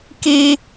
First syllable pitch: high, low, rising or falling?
high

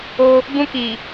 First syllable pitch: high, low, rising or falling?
high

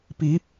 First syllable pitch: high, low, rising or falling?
rising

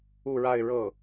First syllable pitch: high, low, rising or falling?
falling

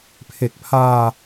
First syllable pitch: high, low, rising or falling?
low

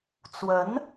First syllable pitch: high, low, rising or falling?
rising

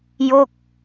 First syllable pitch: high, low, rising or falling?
falling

